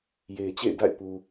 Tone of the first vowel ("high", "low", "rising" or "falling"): low